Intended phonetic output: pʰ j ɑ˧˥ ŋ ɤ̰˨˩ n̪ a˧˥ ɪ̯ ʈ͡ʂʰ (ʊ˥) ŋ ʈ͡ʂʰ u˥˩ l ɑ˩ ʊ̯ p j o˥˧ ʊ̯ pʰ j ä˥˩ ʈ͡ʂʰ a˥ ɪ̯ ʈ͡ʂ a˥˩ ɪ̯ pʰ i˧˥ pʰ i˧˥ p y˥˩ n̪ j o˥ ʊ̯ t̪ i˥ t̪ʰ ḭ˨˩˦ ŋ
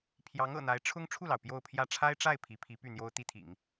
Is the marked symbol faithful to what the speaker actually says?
yes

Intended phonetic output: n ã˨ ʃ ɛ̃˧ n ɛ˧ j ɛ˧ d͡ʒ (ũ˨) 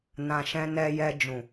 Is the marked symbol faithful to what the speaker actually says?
yes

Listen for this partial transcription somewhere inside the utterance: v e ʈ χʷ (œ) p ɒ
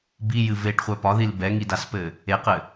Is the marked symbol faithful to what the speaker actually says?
yes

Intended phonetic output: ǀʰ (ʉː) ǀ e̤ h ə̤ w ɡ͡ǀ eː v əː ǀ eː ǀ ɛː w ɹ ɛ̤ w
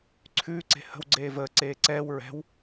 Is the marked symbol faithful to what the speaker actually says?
yes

